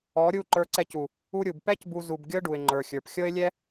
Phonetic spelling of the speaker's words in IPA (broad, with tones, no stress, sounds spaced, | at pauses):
ɔ˨˦ ɾʲ u˦˨ ǃ ə˞˧ ǀ ɛ˧ c u˨ | u˧ ɾʲ u˨ b p ɛ˦ c b u˧ z u˧ b ɡʲ ɤ˦ ɖ u˨ ɪ̯ ŋ͡ǃ ə˞˨ xʲ ə˞˨ p xʲ ɤ˦ ɪ̯ lʲ ɛ˦